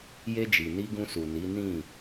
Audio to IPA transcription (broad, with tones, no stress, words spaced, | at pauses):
je˧d͡ʒi˨ni˧ ɡũ˧su˨ ni˨˦ nĩ˦˨